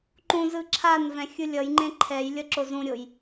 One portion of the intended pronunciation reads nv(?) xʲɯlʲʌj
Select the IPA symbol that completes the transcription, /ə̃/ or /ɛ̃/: ɛ̃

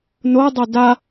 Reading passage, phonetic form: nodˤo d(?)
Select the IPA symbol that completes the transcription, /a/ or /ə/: a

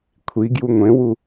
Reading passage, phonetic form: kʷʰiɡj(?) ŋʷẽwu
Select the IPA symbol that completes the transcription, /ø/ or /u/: u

